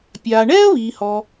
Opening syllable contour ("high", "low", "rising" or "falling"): low